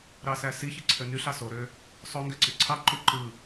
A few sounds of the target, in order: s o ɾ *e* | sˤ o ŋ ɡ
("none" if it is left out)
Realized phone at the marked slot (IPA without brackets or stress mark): ø